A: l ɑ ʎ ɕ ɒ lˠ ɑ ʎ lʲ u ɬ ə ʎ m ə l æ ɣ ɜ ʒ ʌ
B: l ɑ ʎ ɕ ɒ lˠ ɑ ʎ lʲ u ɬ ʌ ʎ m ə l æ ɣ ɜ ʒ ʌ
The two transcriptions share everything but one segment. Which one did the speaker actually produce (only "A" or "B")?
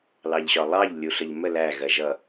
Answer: A